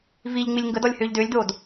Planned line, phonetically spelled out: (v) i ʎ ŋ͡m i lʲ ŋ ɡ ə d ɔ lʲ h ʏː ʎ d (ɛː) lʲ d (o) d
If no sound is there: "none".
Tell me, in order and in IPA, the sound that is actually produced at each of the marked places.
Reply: v, ʏː, oː

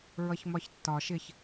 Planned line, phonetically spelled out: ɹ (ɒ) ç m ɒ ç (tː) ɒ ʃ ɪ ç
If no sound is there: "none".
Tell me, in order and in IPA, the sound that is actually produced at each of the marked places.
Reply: ʌ, tː

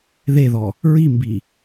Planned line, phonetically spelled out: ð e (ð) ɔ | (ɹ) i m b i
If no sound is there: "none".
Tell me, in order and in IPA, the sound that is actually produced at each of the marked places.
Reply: ð, ɹ

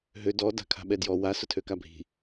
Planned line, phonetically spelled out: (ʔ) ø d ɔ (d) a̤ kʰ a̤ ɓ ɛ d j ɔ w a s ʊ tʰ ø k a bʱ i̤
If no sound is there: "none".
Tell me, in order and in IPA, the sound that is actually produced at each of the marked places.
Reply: ɦ, d

